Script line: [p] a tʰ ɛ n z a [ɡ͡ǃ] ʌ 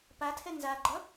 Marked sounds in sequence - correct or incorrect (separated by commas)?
correct, correct